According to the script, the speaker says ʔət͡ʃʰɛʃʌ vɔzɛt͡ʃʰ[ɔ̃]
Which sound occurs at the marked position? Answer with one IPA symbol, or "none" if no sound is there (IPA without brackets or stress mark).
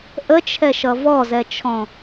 ɔ̃